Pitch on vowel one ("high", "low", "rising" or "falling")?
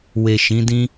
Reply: low